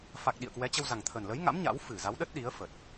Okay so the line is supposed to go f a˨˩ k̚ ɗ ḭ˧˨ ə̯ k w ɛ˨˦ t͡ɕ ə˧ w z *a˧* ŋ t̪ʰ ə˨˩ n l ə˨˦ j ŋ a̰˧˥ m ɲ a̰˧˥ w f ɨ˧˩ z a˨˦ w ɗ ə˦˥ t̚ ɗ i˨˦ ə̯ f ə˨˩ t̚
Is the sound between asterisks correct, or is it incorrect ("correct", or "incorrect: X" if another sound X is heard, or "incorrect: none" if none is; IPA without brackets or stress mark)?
incorrect: a˨˩